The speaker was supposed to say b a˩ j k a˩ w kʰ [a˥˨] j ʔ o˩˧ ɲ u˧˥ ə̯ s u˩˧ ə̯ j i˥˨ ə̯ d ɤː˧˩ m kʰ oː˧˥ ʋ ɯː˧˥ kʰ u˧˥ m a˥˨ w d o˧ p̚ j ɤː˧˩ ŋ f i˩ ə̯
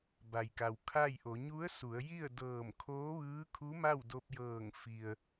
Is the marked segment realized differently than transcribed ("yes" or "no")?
no